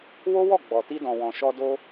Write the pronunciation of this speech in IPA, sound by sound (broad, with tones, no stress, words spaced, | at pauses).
wo˦wɔ˦˨ɡ͡bɔ˨ ti˧dɔ̃˨wɔ̃˨ ʃɔ˧do˧